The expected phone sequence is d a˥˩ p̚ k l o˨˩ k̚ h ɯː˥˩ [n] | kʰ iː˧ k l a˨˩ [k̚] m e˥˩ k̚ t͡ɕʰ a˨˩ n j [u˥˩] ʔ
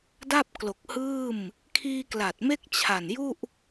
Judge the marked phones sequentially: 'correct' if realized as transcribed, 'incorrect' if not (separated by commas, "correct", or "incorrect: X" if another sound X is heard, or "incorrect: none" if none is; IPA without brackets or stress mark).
incorrect: m, incorrect: t̚, correct